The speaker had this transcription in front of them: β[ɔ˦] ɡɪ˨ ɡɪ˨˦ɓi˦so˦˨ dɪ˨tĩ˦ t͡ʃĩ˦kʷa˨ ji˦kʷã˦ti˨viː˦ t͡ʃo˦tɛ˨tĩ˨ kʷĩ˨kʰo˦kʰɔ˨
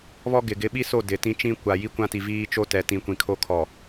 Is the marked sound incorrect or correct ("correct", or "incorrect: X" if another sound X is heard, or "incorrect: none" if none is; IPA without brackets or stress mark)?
correct